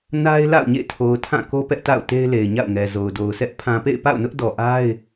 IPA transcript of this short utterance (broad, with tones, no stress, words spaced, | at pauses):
na˦ɪ̯ la̰˦˨ʊ̯ɲḛ˦˨tʰo˨ʊ̯tʰã˦˨ ko˦ pɛ˦ʔta̰˦˨ʊ̯te˦ɪ̯ le˨ɪ̯ɲa̰˦˨ʊ̯ŋɛ˨ zo˨ʊ̯ do˨ʊ̯sʰɛ˦ʔ pʰã˨pḛ˦˨ɪ̯pa̰˦˨ʊ̯nʊ˦ʔ dɔ˨ʔa˦ɪ̯